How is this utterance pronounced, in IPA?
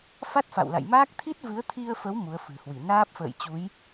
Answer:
f a˦˥ t̚ f a̰˧˨ w l a̰˧˨ j m aː˦˥ k̚ t̪ʰ i˦˥ t̚ v ɨ˨˦ ə̯ t̪ʰ i˧ ə̯ f ə˨˦ w m u˨˦ ə̯ f ɨ̤˨˩ h w i˧˩ n aː˦˥ p̚ f ə̰ː˧˨ j t͡ɕ u˨˦ j

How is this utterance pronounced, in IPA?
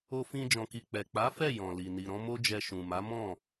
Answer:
o˧ f ĩ˧ d͡ʒ ɔ̃˨ k i˨ k͡p ɛ˨ k͡p a˨˦ f ɛ˦˨ j ɔ̃˨ l i˨ n i˨ ɾ ɔ̃˨˦ m o˦ d͡ʒ ɛ˧ ʃ ũ˨ m a˨˦ m ɔ̃˦˨

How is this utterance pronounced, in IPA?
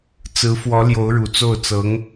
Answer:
t͡s ɹ̩˧˥ f w ɔ˧˥ l j o˧˥ ʊ̯ ɻ u˨˩ t͡s o˥˩ ʊ̯ t͡s ɤ˧˥ ŋ

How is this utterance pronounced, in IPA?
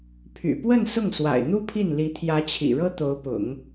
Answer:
pʰ y̰˨˩ p w ə˥˧ n s ʊ˥˩ ŋ s w a̰˨˩ ɪ̯ n̪ u˥ pʰ i˥˩ n l i˧˥ t̪ʰ j ä˧˥ t͡ɕʰ ḭ˨˩ ɻ ɤ˥ t̪ o˧˥ ʊ̯ p ʊ̰˨˩˦ ŋ

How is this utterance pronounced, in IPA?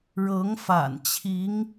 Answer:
ɻ ɤ˧˥ ŋ f a̰˨˩ n t͡ɕʰ i˧˥ ŋ

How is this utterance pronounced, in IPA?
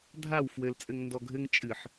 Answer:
dʱ a w f w ɘ l t͡sʼ ɘ ŋ n d ɔ ɡʱ ɘ ŋ t͡ʃʼ ɨ ħ

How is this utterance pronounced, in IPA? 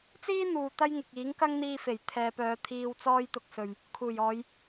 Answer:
t͡s iː˥ n̪ uː˨ t̪ ɐ˥ j ŋ ɪ˨ k̚ iː˨˥ ŋ k ɐ˥ ŋ n̪ iː˧ f e˨˩ j t̪ʰ ɛː˨˧ p œː˨˧ t̪ʰ iː˨ w t͡s ɔː˧ j t̪ ʊ˨ k̚ s ɵ˨ ɥ | kʰ uː˨˩ j ɔː˨˧ j

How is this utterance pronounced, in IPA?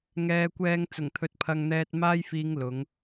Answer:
ŋ ɛː˨˧ kʷ ɛː˧ ŋ t͡s ʊ˨˩ ŋ t̪ʰ ɵ˧ t̚ pʰ ɐ˧ ŋ n̪ ɛː˧ t̚ m aː˥ j f iː˧ ŋ l ʊ˨˥ ŋ

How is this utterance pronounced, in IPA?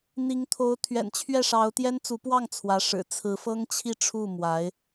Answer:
n̪ i˧˥ ŋ t̪ʰ o˧˥ ʊ̯ t̪ʰ ɥ ɛ̰˨˩ n t͡ɕʰ ɥ ɛ˥˩ ʂ ɑ˧˥ ʊ̯ t̪ j ɛ˥ n t͡s u˧˥ p w ɑ˥˩ ŋ t͡sʰ w ä˧˥ ʂ ɻ̩˨˩ t͡sʰ ɹ̩˧˥ f ɤ˥ ŋ t͡ɕʰ i˥˧ ʈ͡ʂʰ u˥˩ m w a˧˥ ɪ̯

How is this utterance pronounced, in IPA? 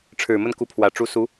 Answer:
ʈ͡ʂʰ ɻ̩˨˩ m ə˥˩ n k u˧˥ pʰ w ä˨˩ ʈ͡ʂ u˧˥ s u˧˥

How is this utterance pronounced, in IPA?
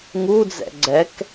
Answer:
ŋ u d͡z ɛ̰ ɡ͡ǀ ɛ k

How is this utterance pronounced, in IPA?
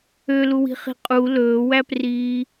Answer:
ø l u w i̤ χ i̤ qʼ u l ɵː w æ p r iː

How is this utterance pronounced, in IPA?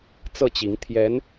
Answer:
t͡s ɤ˥˩ t͡ɕ i˧˥ ŋ t̪ʰ j ɛ˧˥ n

